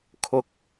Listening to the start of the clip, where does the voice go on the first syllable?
high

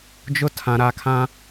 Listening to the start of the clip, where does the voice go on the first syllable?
high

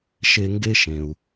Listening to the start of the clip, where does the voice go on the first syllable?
high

